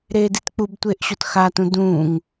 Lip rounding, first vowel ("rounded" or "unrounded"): unrounded